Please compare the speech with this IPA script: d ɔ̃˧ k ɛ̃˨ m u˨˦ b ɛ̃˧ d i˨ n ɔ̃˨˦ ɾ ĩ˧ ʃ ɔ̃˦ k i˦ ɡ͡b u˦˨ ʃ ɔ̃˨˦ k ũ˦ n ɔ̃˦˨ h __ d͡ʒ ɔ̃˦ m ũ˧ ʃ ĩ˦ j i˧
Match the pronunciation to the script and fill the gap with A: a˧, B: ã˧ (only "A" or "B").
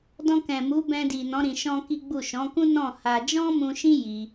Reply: A